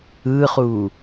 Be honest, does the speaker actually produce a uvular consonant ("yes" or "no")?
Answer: yes